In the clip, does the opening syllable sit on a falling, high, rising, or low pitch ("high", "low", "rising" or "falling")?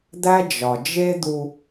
high